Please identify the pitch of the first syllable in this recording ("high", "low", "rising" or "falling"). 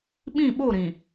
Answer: falling